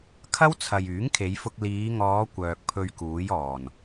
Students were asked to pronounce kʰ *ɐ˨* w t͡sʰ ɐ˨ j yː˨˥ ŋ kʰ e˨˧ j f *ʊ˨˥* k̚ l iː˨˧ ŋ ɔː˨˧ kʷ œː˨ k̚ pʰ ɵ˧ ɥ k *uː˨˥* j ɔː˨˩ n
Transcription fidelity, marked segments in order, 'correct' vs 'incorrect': incorrect: ɐ˥, incorrect: ʊ˧, correct

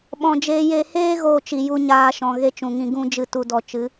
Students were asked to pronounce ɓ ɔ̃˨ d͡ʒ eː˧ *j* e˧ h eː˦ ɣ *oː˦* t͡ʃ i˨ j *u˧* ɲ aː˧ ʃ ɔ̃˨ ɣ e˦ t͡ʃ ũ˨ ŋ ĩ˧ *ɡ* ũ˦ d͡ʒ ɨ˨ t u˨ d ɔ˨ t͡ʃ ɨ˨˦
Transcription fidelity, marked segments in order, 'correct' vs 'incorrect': correct, correct, incorrect: u˦, correct

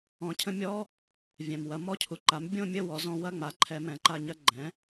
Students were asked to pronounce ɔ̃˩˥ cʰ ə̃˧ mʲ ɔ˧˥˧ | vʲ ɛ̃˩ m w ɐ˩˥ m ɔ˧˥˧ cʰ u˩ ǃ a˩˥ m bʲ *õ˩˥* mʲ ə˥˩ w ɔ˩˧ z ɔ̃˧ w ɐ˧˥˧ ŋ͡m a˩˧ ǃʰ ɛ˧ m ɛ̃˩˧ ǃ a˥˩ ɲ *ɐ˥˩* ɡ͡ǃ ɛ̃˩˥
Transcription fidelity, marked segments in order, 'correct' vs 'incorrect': incorrect: õ˥˩, incorrect: ɐ˧

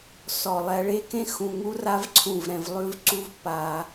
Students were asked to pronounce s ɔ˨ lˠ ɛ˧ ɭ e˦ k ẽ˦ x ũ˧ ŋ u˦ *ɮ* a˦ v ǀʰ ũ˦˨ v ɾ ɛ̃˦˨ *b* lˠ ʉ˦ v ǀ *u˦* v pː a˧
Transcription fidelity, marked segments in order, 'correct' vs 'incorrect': incorrect: r, incorrect: v, correct

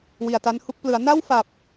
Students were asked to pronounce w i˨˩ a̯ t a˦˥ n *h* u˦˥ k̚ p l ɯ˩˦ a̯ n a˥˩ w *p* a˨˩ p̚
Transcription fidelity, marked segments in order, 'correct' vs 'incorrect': correct, incorrect: f

